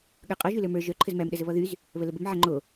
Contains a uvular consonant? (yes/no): yes